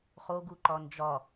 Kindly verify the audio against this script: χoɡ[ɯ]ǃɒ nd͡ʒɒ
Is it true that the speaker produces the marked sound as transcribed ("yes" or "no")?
no